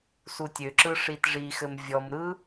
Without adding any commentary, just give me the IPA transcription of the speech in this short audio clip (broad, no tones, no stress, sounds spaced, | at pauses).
s u tʲ ø ǁ ɯ ʂ i t ʐ i x ɘ m vʲ ɔ m ɾ ɯ